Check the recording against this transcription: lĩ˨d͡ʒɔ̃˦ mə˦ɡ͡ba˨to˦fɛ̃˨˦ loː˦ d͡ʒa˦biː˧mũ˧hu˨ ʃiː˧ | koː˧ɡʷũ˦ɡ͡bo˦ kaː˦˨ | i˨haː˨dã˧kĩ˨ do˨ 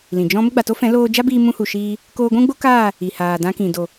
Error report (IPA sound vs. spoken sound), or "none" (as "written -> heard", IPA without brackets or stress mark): none